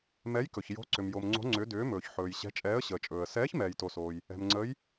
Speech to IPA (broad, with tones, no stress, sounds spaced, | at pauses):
m ɛ˧˥ j k ɵ˨ ç j o̤˧˥ ǀ ʏ˨ m j o˨ m ŋ͡ǀ o̤˧˥ ŋ͡ǀ ʏ˧˥ d ʏː˧˥ m ɵː˨ ç ħ ɵː˨ j ɕ ɛ̤˧˥ t͡ʃʼ ɛː˧˥ ə̯ ɕ əː˨ t͡ʃʼ ɵː˨ ə̯ s ɛː˧˥ ç m ɛː˨ j t o˨ s oː˨ j | ɛ̤˨ m ŋ͡ǀ əː˧˥ j